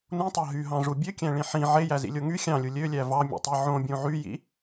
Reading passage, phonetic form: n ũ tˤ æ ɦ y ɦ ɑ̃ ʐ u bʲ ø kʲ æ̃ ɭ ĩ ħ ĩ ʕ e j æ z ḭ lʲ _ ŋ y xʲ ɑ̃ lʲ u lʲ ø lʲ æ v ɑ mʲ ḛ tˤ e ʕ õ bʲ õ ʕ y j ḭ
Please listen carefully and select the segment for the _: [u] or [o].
o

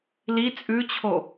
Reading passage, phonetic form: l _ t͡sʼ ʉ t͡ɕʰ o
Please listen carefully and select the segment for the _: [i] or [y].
i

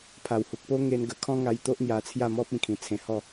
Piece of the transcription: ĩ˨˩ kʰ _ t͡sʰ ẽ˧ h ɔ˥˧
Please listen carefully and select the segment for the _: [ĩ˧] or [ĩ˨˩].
ĩ˨˩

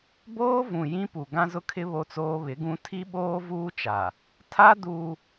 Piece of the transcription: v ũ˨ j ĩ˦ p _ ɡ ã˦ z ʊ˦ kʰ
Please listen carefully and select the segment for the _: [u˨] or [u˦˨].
u˨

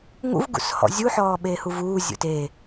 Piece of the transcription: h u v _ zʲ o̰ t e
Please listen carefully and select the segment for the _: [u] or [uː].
uː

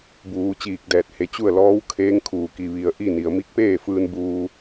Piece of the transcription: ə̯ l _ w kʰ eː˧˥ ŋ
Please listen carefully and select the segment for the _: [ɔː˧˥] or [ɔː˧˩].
ɔː˧˥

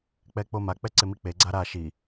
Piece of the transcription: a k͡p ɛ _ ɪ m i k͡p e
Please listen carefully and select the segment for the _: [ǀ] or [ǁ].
ǀ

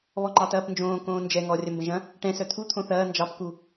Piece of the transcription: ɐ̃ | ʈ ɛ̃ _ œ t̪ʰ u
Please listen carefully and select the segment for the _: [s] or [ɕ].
s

